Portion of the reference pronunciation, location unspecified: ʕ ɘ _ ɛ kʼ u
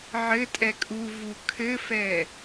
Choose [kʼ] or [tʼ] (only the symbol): tʼ